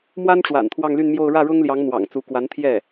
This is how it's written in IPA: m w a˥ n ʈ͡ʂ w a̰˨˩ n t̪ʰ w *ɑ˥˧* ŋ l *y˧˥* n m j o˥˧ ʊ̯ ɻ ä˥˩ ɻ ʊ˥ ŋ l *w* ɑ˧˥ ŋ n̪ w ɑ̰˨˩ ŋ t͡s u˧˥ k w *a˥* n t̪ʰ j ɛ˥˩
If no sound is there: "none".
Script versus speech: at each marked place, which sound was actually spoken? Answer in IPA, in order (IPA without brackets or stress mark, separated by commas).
ɑ˥˧, y˥˧, j, a˧˥